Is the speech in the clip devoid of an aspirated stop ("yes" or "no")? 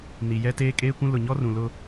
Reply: yes